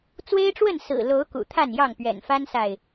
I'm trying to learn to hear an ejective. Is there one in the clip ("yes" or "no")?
no